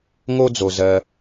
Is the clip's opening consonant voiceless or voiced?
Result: voiced